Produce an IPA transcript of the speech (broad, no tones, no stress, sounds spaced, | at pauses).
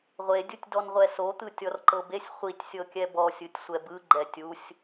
ʁʷ e dʲ u tʲ d ɔ n ʁʷ ɛ s o t̪ ɯ tʲ ɔ r ǃ ɤ b e sʲ χʷ i tʲ sʲ ɤ kʲ ɛ b ɔ sʲ ɯ tʲ sʷ ɛ b ɯ ɡ͡ǃ ɛ tʲ u sʲ